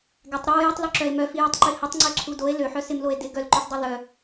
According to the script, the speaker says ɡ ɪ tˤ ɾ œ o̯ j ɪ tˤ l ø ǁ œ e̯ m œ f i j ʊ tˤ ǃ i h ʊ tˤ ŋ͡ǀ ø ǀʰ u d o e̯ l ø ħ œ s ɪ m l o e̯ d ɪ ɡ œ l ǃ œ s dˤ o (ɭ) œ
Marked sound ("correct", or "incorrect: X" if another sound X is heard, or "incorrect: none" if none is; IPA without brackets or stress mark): incorrect: l